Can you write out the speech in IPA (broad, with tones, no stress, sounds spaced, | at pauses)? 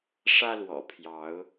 ʂ ä˦ l w ɔ̰˨˩ pʰ j ɑ˨˦ ʊ̯